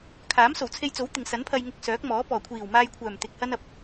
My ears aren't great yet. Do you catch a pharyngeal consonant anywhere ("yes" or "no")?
no